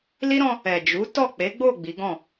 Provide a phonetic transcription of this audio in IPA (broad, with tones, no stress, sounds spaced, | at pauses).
l i˦ ɾ ɔ̃˧ | ɛ˨ d͡ʒ u˨˦ t ɔ˦˨ k͡p e˨˦ ɡ͡b o˦˨ ɡ͡b i˨˦ ɡ ɔ̃˦˨